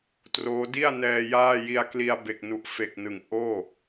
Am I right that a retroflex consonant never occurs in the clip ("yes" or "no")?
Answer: yes